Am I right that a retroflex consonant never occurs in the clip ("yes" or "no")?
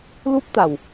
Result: yes